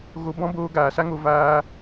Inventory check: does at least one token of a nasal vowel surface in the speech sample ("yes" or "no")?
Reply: yes